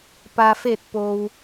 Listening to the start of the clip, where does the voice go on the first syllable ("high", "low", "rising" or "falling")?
low